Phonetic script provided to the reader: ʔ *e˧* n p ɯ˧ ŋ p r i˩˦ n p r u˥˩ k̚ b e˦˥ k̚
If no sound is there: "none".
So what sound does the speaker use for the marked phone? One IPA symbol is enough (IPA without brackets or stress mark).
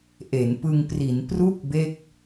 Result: e˩˦